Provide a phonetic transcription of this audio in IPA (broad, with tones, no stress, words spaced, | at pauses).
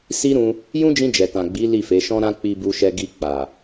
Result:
si˦ɾũ˧ | jũ˦d͡ʒĩ˧ d͡ʒɛ˨tã˨ ɡ͡bi˨˦ li˦˨fe˨˦ ʃɔ̃˦ɾã˦ k͡pi˧bu˧ʃɛ˧ ɡi˧ k͡pa˨